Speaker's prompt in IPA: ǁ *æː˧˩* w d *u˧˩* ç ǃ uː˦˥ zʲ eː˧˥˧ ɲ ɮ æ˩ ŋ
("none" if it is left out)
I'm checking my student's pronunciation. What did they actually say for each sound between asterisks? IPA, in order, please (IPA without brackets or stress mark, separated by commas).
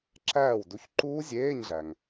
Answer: æː˧˩, u˨˥